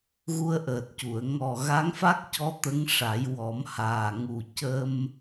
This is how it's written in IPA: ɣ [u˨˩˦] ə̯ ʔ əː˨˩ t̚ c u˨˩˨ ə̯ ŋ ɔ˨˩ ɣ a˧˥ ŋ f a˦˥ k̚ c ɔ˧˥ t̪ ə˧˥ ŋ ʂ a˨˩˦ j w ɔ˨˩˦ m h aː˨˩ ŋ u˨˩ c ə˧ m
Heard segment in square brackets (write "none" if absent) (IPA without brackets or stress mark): u˧